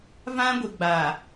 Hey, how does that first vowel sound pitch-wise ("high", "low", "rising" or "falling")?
high